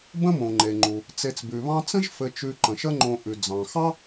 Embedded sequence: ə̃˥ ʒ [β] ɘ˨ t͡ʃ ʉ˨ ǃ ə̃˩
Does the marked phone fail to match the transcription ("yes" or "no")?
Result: yes